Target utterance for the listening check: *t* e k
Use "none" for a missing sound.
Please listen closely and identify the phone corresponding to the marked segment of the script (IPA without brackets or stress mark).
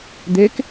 d̪